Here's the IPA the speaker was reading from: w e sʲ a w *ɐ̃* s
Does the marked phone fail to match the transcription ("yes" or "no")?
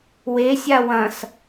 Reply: no